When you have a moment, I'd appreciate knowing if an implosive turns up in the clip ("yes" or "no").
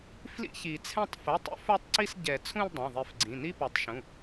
no